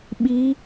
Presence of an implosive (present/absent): present